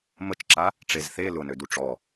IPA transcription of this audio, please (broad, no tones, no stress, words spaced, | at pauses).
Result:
mət͡ʃǁa | ʈ͡ʂezθe lʊnødu ʈ͡ʂɔ